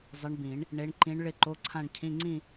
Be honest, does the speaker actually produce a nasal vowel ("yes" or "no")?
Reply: yes